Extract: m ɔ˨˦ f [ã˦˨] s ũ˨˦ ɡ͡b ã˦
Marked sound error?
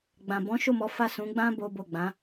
yes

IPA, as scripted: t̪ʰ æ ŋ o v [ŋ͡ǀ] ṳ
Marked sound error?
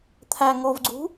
yes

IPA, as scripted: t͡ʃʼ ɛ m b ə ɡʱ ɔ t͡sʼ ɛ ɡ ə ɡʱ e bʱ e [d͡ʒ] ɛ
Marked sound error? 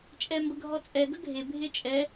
yes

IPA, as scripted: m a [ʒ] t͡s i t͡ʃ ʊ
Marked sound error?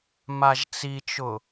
no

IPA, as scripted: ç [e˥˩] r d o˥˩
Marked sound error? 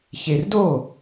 yes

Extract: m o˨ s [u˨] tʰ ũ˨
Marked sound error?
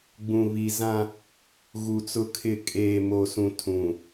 yes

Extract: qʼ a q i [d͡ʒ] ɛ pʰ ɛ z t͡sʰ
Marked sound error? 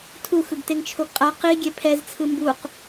yes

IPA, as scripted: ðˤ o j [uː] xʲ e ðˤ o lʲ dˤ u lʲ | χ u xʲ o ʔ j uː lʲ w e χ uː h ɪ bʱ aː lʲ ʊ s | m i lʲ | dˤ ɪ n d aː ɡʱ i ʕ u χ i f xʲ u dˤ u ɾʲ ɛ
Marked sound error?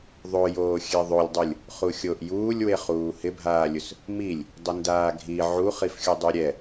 yes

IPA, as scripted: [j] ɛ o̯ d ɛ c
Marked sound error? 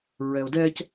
yes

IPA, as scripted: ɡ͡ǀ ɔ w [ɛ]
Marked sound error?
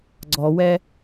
no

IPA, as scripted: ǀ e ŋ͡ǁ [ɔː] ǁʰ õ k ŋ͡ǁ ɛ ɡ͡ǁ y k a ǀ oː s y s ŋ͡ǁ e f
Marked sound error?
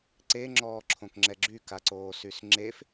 no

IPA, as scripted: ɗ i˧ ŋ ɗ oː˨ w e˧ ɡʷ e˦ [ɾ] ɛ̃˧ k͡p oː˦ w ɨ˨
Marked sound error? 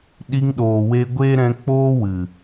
no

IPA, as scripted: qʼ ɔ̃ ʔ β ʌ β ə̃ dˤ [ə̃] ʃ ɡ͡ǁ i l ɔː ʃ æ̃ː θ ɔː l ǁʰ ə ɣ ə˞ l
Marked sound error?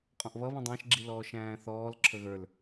yes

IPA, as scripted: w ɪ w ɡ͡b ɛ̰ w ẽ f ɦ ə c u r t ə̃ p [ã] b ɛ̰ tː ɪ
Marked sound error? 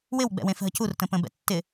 yes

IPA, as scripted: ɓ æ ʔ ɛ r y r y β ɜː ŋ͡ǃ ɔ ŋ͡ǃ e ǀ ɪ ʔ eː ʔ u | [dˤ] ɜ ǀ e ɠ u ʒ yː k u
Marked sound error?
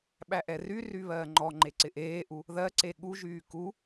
yes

